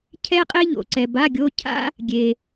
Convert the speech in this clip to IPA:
cʰ ɛ˥ qʼ e˥ ʎ o̰˩ ǀ ɛ˩ b a˧˥˧ ɡʲ o˧˥˧ cʰ a̰˥ | ɡʲ e˩

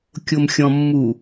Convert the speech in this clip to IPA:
kʲ o m xʲ ɔ̃ mː u

